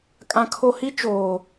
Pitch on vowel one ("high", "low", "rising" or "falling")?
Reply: high